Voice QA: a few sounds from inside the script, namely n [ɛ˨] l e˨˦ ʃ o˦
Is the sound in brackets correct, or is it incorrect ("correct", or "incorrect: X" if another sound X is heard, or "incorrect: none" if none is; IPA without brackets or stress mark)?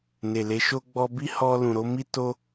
incorrect: e˨